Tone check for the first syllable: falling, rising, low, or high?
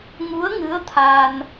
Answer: rising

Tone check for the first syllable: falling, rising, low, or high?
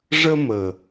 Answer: high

